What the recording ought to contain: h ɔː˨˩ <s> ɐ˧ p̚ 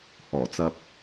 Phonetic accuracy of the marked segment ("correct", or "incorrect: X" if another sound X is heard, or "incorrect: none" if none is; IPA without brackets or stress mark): incorrect: t͡s